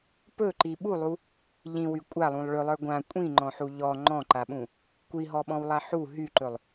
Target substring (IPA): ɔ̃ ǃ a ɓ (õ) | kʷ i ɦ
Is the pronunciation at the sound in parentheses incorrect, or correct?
incorrect